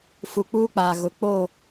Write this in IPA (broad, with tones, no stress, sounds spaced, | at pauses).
f u˨ k͡p uː˦ k͡p aː˨ ɣ ʊ˨ k͡p o˦˨